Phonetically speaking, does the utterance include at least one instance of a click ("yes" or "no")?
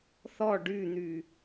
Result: no